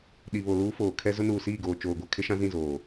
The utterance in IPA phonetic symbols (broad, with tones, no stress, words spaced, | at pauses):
ɗi˨βo˨luː˦ foː˨ kʰɛ˦ zʊ˦nuː˨siː˦˨ɡoː˨ t͡ʃoː˨ɡʷa˨ kʰɪ˦ʃã˦zĩ˦˨zoː˨